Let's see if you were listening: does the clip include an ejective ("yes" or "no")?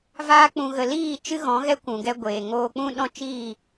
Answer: no